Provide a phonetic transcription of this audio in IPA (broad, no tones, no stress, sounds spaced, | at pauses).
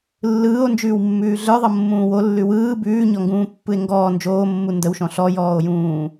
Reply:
lː ɯː o̯ n d͡ʒ ʉː w mː ʉː ɮ ə˞ ðˤ ɤ mː ũː w o lː ʉ w ɯː b ʉː ɲ ɔ ŋ ɡ ũː pː ɯ e̯ ŋ ɡ ɔː n d͡ʒ oː mː u n d ə w ʃ ɔ̃ ɬ ɔ j ɔː o̯ j ũː